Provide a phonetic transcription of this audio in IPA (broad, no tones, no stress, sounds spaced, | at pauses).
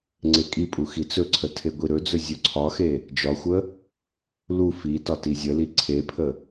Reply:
ŋ͡ǀ e kʼ i pʼ u x i t͡s ɵ ǀʰ ə tʰ e ɡʷ i ɾ ɵ d͡z ɵ zʲ ɵ ǀʰ ɒ x e | d͡ʒ ɒ xʷ ə | l u f i t ɒ t i zʲ ə l i ǀʰ e pʰ ə